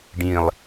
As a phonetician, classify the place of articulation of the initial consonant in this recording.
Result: retroflex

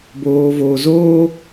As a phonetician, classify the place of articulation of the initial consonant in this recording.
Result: labial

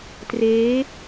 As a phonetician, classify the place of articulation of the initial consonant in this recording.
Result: alveolar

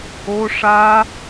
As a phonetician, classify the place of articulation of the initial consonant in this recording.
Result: retroflex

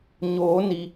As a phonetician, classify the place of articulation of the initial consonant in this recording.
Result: palatal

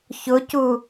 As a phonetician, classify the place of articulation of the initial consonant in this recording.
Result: palatal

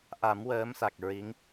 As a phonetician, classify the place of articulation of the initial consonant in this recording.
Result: glottal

